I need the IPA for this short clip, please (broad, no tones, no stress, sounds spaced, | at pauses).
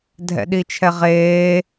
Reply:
dʱ ɛ̰ ɗ i t͡ʃʰ ɛ ʁ eː